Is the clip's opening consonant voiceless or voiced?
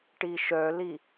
voiceless